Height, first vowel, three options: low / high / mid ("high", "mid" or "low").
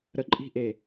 mid